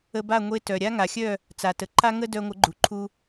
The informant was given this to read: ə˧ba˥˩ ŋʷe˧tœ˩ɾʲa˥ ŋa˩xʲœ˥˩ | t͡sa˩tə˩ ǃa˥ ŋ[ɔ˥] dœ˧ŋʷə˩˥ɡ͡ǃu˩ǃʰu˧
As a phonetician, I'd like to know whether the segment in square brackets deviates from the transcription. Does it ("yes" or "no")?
yes